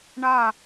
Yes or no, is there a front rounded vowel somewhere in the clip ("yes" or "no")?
no